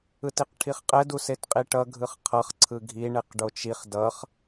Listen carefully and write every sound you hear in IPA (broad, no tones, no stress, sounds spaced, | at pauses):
ɯ t i q ʈʰ i χ qʼ ɛ d u s e t qʼ i ʈ ʌ ɡʱ ɯ χ qʰ ʌ χ ǀʰ ɯ ɡʱ i ɳ e q ɖ o t͡ʃ i χ d ʌ χ